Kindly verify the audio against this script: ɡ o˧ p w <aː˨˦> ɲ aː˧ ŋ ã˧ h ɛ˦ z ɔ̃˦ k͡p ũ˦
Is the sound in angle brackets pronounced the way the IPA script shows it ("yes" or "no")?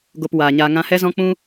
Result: no